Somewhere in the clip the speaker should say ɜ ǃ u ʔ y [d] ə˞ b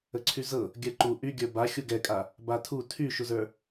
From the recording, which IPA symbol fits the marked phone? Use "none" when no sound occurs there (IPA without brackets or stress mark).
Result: ɡʲ